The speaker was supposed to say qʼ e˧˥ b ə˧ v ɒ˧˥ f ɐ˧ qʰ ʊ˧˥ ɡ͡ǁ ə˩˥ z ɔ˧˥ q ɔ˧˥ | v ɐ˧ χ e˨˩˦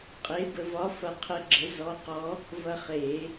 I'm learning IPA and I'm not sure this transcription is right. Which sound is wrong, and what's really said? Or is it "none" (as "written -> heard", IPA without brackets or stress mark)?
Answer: ʊ˧˥ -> ə˧˥